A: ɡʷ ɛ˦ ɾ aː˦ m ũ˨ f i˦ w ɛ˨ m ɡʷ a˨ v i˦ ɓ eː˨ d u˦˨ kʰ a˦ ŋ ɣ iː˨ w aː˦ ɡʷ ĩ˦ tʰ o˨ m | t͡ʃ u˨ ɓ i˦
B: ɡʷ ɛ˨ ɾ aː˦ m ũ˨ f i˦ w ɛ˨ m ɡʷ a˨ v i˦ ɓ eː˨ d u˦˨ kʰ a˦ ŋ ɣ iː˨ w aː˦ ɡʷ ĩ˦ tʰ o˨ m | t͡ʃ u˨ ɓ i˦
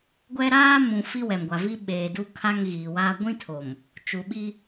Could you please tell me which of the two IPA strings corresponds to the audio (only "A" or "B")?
A